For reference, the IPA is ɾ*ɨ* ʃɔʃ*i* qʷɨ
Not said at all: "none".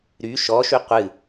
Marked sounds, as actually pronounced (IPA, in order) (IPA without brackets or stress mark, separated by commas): y, y